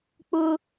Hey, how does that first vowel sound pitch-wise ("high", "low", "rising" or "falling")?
high